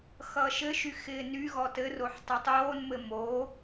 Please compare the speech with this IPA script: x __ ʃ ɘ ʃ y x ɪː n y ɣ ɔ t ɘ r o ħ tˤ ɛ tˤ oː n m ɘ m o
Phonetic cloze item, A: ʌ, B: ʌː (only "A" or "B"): B